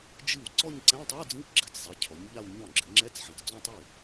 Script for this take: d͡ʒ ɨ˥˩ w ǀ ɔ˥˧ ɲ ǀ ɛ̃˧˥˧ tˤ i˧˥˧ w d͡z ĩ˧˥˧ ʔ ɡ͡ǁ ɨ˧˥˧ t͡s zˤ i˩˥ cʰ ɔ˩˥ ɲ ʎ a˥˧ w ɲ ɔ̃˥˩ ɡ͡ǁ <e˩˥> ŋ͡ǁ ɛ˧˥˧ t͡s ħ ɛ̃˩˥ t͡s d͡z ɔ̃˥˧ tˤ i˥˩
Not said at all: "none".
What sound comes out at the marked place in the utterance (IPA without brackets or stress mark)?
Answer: ɨ˩˥